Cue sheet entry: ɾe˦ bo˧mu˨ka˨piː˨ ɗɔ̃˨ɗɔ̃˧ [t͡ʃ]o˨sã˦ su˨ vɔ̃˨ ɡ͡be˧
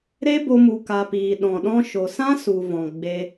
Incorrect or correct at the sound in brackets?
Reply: incorrect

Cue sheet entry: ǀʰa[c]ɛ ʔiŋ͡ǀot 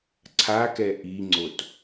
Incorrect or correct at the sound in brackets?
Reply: incorrect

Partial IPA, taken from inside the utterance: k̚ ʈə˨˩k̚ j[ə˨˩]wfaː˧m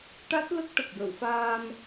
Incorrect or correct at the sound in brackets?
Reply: incorrect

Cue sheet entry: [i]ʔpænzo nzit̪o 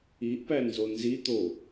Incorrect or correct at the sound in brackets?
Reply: correct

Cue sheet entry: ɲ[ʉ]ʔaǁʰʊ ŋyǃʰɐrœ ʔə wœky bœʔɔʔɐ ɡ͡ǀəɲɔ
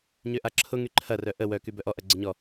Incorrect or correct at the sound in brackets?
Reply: incorrect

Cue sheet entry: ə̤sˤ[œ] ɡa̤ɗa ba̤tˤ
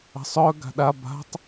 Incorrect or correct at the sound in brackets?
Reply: correct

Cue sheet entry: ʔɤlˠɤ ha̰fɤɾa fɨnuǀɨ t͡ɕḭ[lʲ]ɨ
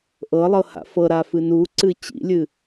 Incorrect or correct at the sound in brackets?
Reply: correct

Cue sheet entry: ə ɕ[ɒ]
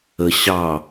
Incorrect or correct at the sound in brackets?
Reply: incorrect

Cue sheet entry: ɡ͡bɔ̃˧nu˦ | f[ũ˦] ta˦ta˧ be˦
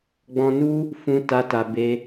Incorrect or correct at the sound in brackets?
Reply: correct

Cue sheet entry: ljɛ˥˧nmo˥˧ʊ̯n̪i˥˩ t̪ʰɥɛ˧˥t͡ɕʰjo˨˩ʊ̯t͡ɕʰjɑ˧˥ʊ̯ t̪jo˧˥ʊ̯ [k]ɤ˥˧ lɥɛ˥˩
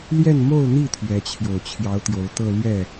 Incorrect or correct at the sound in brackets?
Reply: incorrect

